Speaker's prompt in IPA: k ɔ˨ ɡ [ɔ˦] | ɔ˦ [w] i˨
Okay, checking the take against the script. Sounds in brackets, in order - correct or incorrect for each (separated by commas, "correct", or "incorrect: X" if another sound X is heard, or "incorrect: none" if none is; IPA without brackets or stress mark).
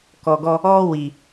correct, correct